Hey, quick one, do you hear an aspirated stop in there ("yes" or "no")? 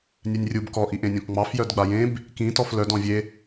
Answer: no